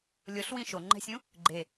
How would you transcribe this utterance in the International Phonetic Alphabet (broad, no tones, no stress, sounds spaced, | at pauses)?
lʲ o ɬ w ĩ ʃ o ŋ͡ǃ ɛ̤ sʲ ũ | ɡ͡ǃ e